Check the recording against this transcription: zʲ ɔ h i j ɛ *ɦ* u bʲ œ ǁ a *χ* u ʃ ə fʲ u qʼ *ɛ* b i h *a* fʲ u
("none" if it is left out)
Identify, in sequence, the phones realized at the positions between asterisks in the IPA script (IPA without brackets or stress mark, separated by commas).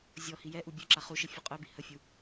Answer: ʔ, χ, œ, ə